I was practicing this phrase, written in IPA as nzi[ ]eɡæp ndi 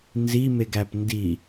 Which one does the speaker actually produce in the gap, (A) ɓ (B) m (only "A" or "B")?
B